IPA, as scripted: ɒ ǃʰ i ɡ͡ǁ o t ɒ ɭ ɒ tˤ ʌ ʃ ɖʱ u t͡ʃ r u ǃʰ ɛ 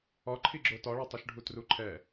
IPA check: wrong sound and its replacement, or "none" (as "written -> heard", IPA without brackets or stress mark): t͡ʃ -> t